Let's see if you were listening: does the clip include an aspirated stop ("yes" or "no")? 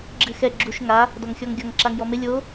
no